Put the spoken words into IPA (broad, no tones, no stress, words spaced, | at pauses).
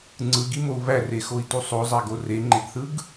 ŋ͡ǀɯɡimou̯ βærexoi̯tu sˤozˤæɡo reŋ͡ǃeɡθɯɡ